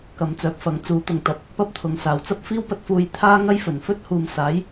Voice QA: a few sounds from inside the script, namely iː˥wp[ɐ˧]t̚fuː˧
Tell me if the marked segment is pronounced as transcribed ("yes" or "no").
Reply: yes